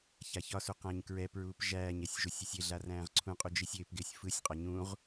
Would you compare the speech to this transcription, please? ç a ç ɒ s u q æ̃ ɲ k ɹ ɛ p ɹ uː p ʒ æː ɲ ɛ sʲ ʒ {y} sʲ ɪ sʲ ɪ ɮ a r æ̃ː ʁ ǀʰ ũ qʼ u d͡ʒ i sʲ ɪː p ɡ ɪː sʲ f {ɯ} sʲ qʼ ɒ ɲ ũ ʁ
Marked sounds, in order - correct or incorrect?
incorrect: u, correct

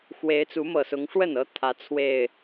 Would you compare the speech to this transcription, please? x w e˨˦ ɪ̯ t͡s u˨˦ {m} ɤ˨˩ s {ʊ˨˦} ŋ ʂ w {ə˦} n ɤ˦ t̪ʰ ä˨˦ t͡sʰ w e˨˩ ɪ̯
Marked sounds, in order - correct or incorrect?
correct, correct, incorrect: ə˥˨

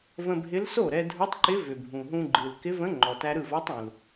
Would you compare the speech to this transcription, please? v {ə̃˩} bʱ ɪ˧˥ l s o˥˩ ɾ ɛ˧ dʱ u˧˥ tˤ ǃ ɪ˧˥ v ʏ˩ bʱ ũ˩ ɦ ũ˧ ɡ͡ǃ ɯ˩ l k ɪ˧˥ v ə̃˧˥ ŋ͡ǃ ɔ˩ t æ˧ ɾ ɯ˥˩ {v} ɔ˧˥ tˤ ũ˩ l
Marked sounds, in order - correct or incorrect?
incorrect: ə̃˧, correct

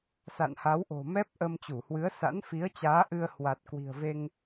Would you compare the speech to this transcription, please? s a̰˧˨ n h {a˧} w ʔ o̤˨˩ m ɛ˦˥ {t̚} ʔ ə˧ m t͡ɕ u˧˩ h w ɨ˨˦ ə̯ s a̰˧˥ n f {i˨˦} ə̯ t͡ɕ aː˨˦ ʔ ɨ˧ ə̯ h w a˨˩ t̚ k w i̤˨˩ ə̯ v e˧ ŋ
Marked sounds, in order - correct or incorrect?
incorrect: a˨˦, incorrect: p̚, correct

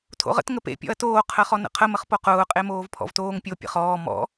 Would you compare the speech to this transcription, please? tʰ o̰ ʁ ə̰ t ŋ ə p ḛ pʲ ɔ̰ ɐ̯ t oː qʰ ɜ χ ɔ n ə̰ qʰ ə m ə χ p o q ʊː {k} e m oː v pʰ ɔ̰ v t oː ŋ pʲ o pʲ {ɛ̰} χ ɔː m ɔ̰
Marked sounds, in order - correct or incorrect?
incorrect: qʼ, incorrect: ə̰

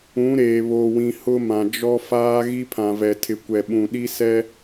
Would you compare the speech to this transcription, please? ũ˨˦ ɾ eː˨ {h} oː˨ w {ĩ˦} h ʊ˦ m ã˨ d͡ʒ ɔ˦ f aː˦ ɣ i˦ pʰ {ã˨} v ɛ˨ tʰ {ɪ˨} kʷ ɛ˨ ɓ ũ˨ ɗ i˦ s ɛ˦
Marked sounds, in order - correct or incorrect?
incorrect: β, incorrect: ĩ˨, correct, correct

